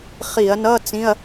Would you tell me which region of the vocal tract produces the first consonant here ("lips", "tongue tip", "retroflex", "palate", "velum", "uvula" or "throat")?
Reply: uvula